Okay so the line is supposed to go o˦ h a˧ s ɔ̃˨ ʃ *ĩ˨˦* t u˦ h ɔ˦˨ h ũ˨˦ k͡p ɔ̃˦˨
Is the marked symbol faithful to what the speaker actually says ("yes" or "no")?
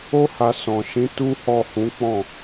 yes